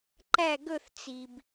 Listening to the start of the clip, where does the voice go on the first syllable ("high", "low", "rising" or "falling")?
falling